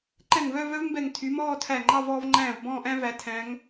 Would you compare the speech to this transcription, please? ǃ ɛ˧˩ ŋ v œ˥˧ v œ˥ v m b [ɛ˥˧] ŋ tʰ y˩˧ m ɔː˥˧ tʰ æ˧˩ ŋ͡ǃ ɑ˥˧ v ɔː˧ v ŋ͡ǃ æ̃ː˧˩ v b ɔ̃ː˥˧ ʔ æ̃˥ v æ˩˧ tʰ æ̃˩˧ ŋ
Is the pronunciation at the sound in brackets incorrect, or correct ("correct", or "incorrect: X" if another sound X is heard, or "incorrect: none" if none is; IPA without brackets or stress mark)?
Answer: incorrect: ɛ˧˩